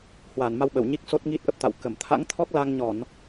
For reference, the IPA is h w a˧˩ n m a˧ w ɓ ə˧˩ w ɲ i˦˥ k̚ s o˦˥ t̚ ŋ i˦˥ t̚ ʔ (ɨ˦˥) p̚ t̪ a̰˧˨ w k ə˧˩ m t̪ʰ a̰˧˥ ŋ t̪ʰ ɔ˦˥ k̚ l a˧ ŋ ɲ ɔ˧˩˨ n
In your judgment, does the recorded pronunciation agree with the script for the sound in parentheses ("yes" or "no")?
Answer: no